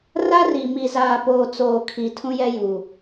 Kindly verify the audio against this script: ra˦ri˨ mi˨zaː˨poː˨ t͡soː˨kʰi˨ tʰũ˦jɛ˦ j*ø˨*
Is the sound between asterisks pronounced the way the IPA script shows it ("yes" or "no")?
no